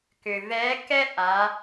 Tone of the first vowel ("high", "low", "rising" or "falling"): low